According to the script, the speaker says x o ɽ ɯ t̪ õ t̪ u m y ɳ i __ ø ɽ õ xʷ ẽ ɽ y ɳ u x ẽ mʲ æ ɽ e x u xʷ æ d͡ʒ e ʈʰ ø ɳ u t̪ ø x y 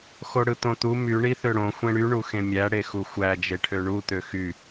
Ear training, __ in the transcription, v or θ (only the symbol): θ